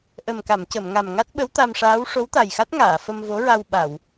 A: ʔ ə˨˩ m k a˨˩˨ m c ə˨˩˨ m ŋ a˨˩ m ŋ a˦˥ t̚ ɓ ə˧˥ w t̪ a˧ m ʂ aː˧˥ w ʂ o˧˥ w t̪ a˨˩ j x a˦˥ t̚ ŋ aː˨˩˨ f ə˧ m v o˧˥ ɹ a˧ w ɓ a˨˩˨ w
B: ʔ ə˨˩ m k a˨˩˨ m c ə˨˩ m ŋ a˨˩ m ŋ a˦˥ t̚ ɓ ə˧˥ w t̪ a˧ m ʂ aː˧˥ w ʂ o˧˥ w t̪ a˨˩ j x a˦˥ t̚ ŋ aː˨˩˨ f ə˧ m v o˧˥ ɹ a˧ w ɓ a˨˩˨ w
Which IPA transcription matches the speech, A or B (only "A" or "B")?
A